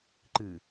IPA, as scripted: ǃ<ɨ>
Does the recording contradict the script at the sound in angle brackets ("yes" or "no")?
no